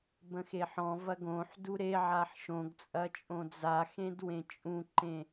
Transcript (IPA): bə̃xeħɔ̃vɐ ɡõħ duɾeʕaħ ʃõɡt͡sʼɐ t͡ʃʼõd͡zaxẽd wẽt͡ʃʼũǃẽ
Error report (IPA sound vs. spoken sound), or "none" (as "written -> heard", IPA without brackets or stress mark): none